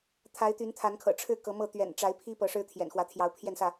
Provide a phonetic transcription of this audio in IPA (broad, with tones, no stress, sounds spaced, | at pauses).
t̪ʰ a˨˦ ɪ̯ t̪ y˨˦ n t̪ʰ a˨˦ n kʰ ɤ̰˨˩ ʈ͡ʂʰ ɻ̩˥˨ k ɤ˨˦ m ɤ˥˨ t̪ ɥ ɛ̰˨˩ n ʈ͡ʂ a˨˦ ɪ̯ pʰ i˦ p ɤ˨˦ ʂ ɻ̩˦ t̪ʰ j ɛ̰˨˩ n x w ä˨˦ t̪ʰ j ɑ˨˦ ʊ̯ pʰ j ɛ˥˨ n s ä˥˨